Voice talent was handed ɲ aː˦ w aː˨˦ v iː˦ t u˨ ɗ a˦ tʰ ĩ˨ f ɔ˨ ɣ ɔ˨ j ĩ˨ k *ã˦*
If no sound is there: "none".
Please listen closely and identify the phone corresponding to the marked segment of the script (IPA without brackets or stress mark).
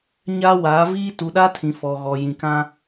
ã˦